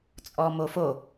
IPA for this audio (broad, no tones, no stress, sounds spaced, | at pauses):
t͡sʼ ɔ m o f o